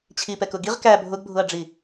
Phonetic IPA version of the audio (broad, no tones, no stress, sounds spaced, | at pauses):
t͡ɕʰ i p ɛ k ʊ ɡ i ʁ k æ bʱ ʊ ɡ bʱ ʊ ɐ̯ ɖ͡ʐ i